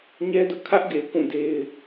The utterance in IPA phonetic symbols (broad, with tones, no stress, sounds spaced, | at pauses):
ɲ ɛ˦ d ʊ˦ ʔ kʰ ä˦ ʔ ɡ e˨ ɪ̯ k ũ˦˨ d e˦ ɪ̯